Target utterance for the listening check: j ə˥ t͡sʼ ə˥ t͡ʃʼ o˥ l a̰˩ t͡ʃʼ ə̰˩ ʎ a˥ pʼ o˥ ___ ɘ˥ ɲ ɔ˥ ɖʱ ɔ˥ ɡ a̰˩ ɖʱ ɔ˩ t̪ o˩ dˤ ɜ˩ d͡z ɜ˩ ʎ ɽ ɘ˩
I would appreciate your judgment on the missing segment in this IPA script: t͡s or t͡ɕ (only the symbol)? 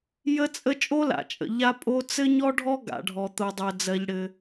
t͡s